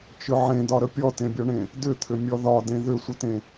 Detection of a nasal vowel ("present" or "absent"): present